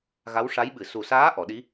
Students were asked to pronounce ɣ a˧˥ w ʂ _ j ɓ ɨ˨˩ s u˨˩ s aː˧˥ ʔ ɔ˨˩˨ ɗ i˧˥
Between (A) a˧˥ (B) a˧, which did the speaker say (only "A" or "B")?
A